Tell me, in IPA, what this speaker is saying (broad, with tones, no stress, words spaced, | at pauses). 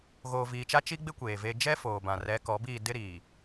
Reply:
ɣoː˨viː˨t͡ʃa˦ t͡ʃi˦ɡ͡bɪ˦ kʷeː˨veː˦ d͡ʒɛ˦ foː˨bã˨ rɛ˨˦kɔ˨˦biː˦˨ dɪ˦ɾiː˨